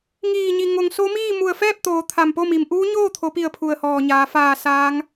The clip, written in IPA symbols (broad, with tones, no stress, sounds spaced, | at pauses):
ŋ iː˧˩ ɲ i˩ ŋ o˩ ŋ s o˧˥ m iː˥˨ m u˧˩ ə̯ f ɛː˥˨ p̚ t̪ oː˩˧ t̪ʰ a˧˩ m p o˥˨ m i˩ m ʔ uː˧˥ ɲ oː˥˨ t̪ʰ o˩˧ p i˧˩ ə̯ pʰ u˧˩ ə̯ h ɔː˧˩ ɲ aː˩˧ f aː˧˩ s aː˧˥ ŋ